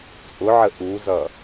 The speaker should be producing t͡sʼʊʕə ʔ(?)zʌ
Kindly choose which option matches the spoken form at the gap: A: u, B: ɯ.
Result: A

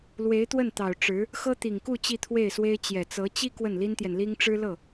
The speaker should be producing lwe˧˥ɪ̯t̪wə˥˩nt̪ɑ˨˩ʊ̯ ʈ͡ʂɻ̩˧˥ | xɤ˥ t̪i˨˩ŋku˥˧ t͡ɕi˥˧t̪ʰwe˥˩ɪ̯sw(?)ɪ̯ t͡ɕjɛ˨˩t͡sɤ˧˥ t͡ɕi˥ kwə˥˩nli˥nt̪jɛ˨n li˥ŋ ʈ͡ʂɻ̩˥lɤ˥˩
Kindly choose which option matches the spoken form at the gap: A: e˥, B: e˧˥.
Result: A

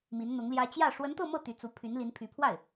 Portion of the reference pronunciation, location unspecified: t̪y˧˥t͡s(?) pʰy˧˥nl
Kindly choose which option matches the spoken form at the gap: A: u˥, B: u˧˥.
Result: B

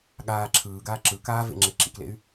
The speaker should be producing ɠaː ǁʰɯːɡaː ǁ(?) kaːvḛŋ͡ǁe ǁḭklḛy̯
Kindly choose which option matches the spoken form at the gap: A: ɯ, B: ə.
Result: A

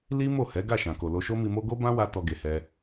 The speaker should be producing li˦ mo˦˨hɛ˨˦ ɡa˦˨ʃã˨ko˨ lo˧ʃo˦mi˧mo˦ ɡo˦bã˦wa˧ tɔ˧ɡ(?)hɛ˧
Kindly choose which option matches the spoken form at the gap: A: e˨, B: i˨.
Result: A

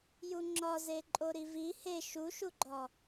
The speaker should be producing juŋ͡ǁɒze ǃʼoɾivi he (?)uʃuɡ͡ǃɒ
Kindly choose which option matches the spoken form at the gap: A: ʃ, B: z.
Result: A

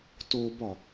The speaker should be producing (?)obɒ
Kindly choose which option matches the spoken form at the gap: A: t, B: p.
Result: A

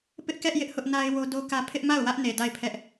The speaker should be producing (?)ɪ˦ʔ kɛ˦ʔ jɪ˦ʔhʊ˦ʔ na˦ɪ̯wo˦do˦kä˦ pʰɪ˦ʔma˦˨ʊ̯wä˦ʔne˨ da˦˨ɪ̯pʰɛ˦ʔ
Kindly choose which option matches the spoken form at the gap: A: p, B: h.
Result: A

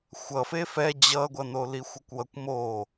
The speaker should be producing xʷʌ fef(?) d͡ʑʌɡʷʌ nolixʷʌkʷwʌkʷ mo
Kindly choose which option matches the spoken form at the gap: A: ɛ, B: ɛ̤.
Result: A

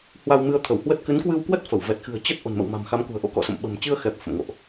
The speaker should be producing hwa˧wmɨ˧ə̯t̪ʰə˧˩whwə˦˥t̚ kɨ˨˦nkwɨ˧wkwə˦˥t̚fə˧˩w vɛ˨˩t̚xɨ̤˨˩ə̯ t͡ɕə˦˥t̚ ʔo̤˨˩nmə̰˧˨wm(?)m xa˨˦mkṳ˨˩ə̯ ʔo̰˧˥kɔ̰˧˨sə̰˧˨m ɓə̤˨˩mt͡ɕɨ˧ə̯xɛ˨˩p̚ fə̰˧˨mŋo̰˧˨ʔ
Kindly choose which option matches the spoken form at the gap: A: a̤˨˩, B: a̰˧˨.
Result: A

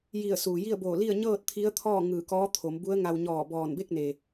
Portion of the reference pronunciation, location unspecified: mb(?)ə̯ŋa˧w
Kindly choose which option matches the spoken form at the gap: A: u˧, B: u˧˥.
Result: B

